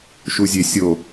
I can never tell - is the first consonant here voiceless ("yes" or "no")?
yes